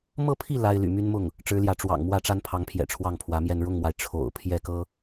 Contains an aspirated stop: yes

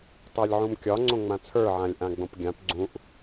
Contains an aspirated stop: yes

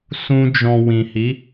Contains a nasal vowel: yes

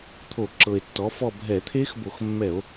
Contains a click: yes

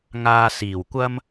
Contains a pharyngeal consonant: no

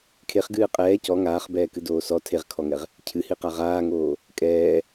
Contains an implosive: no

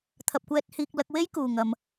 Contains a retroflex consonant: no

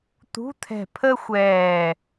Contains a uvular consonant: no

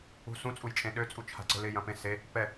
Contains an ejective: yes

